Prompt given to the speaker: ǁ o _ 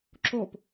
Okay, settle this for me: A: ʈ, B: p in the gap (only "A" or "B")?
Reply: B